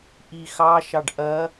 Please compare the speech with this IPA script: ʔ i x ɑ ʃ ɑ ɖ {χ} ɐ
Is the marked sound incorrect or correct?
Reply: incorrect: ʔ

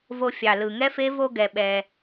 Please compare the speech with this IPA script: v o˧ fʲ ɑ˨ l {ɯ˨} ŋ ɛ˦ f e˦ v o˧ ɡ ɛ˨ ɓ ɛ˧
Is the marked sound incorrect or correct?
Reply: correct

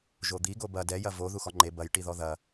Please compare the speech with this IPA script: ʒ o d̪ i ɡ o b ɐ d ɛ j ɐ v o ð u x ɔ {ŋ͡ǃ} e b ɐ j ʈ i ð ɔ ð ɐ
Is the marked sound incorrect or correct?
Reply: correct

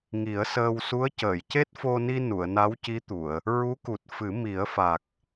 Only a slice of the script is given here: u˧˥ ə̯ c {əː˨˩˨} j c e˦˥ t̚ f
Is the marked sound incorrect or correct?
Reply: correct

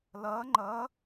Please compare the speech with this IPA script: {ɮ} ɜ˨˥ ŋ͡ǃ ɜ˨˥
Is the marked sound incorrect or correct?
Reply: incorrect: l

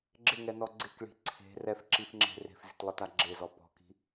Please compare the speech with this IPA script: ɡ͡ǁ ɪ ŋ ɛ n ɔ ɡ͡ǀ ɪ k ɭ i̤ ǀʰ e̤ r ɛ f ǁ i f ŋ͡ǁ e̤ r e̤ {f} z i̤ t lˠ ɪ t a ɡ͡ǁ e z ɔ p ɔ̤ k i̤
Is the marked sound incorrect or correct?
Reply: correct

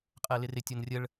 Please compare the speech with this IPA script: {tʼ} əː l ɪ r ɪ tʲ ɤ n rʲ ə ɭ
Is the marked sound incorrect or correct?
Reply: incorrect: qʼ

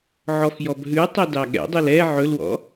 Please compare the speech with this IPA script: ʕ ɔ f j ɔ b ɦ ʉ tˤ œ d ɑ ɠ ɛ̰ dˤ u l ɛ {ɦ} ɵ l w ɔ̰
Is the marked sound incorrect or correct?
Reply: incorrect: ʕ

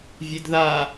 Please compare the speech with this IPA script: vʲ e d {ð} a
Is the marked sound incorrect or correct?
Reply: correct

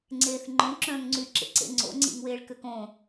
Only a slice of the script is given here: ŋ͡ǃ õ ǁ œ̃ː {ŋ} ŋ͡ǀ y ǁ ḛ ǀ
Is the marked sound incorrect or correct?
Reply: correct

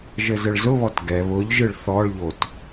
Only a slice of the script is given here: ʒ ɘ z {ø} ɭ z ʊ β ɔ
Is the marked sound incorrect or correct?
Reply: incorrect: ɘ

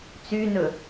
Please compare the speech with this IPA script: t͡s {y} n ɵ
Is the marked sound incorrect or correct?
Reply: correct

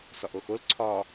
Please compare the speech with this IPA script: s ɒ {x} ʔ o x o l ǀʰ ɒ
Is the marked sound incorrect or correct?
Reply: incorrect: none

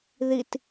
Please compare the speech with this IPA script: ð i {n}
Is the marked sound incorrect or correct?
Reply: incorrect: t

